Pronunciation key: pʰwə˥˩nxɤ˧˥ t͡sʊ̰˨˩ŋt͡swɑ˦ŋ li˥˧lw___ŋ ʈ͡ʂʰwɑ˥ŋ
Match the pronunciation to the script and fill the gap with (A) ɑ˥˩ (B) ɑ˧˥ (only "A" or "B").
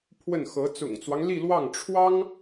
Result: A